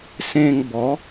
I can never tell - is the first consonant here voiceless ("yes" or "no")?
yes